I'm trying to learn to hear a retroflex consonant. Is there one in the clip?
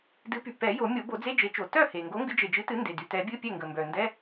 no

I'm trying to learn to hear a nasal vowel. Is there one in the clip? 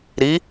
no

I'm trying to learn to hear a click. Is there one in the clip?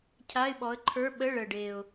yes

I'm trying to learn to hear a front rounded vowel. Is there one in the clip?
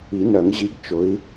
yes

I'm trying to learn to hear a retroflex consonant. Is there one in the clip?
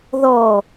no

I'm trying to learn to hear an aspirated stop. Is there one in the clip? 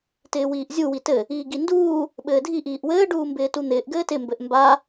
no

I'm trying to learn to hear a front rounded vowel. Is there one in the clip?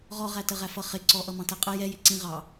no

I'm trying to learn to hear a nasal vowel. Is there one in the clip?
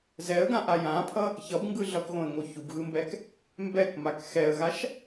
yes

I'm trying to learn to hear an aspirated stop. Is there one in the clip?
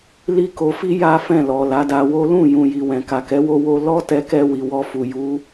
no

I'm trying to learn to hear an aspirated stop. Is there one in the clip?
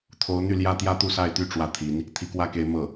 yes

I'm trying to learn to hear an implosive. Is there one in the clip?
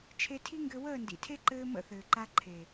no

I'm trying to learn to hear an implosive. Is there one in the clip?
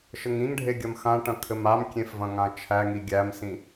no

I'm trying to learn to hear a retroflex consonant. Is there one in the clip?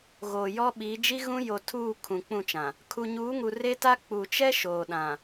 no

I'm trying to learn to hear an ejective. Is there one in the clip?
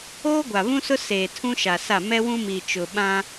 no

